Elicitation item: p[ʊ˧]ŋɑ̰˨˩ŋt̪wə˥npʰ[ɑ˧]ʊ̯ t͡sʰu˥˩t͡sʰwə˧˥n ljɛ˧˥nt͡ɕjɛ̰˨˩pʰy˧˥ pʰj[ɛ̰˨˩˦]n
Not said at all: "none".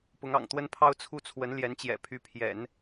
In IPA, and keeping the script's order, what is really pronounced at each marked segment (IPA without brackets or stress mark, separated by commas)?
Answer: ʊ˧˥, ɑ˥, ɛ̰˨˩˦